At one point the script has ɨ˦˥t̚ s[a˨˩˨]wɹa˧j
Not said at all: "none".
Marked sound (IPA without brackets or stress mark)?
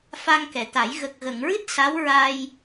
a˧˥